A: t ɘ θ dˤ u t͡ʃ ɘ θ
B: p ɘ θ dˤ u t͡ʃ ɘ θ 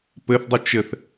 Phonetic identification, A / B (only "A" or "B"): B